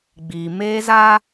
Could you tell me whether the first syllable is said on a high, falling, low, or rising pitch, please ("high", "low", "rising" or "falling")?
low